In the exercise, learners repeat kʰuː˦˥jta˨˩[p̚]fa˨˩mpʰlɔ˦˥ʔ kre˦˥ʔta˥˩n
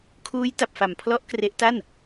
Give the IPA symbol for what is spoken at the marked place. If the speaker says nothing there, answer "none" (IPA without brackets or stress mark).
p̚